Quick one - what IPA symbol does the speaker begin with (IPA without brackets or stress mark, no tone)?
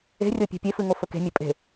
e̤